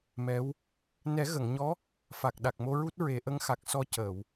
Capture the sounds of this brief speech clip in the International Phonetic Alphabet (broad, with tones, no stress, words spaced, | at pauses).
mɛ˧˥w | nɛ˨˩˦ɣə˨˩˨ŋɲɔ˧˥ | fa˨˩k̚ɗa˨˩k̚ mo˧ɹu˦˥t̚ ɹe˨˩˦ʔə˧˥ŋxa˨˩k̚sɔ˧ cəː˨˩˨w